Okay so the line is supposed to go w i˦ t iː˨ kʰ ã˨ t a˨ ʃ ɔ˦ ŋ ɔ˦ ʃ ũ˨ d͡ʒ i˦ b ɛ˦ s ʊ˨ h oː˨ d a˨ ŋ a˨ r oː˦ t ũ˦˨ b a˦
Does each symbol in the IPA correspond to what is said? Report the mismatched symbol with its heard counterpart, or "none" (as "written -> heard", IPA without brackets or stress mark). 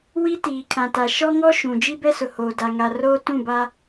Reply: none